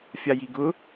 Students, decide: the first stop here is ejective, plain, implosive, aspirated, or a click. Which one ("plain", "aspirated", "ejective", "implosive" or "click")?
plain